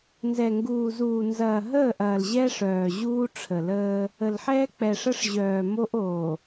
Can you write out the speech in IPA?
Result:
nzɛ˨ŋɡuː˨zuː˨ nzɐː˨ɦəː˦˨ʔɐː˨l ʑɛ˦ʂœː˨ ʑuː˦ʈ͡ʂʰə˨ləː˦ | ə˨lħɛː˦ k͡pɛ˨ʂə˦ʂ ʑœː˨ mo˦ʔoː˨

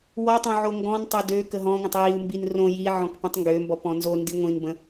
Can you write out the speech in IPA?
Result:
wɔtˤõ ʕoŋɡɔ̃ntˤø dø kəɦɔ̃ŋʷə̃tˤ jiu̯mbin rõ jiʕɔ̃k pĩtˤŋɡømbɔp ɔ̃nzondi ŋʷĩnbə̃

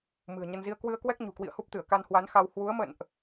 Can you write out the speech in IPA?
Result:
mɨ̤˨˩ə̯ɲə˧nzi˧ə̯ kwɨ˧ə̯kwɛ˦˥k̚ ɲṳ˨˩kwḭ˧˨ə̯hu˦˥p̚t̪ɨ˧˩ə̯ ka˧nhwa˨˦nxa˧w hwu˨˦ə̯mə̰˧˨nʔ

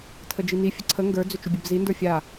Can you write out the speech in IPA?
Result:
tʰəd͡ʒini fʲəǀʰə ŋɡə˞ d͡zʏt͡ʃʏbʲɛbzi ndə˞fʲa

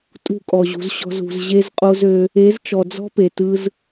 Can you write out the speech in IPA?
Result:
tʼṳ˦˨kʼɔ˨ʑṳ˨zɕɔ̤˧z ṳ˨zʑe˦zqʼo˦zø˦ | e˨˦zt͡ʃɔ˨ d͡zɔ̤˦pe˨tɯ˧z

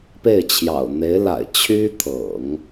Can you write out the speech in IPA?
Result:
pe˥˩ɪ̯ t͡ɕʰjɑ̰˨˩ʊ̯n̪e˧˥ɪ̯la̰˨˩ɪ̯ t͡ɕʰy˥t̪ʰɤ̰˨˩˦ŋ

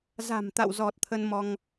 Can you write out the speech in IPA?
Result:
za̤˨˩mt̪a̰˧˨wzɔ˨˩t̚ t̪ʰə˧nmɔ˧ŋ

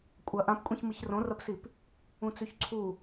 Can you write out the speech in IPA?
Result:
kʷʼɐ ʔãpkʷʼĩç mɨçrõrɐpsip | ũt͡sʉçǀʰu

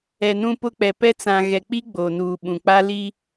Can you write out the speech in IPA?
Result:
ɛ˨nũ˦pʊ˦k͡pɛ˨ pɛ˦ t͡sã˨ɣɛ˨k͡pi˦ ɡ͡bo˨nuː˨ ɓũ˨k͡pa˦ li˦

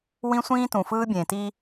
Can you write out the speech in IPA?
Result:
wĩ˦sʷĩː˦ tũ˨fɯː˦ bʲẽː˨ti˦

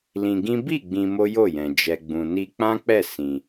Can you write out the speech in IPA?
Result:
lĩ˧ɡĩ˦ bi˦˨ ɡ͡bĩ˧mo˦jo˦˨jɛ̃˨ d͡ʒɛ˨ɡ͡bũ˨ni˧ k͡pã˦k͡pɛ˦˨ sĩ˧

